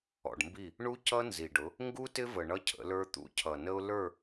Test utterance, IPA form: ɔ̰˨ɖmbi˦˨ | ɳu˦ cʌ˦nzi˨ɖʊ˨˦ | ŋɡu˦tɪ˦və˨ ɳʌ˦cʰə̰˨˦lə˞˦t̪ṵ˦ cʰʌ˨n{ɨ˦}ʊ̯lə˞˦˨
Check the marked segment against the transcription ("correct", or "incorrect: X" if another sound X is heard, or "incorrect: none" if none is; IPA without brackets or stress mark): incorrect: ə˦